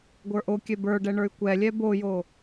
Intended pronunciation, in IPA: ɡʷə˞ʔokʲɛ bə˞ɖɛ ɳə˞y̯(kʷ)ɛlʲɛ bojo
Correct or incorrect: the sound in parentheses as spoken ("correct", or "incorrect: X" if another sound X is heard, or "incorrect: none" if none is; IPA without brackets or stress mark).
correct